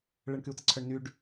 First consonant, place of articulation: retroflex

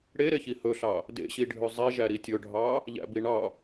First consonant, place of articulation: retroflex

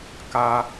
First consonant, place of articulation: velar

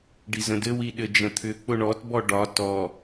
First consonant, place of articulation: retroflex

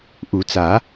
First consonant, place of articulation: glottal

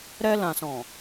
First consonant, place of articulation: alveolar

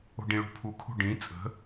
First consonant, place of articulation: retroflex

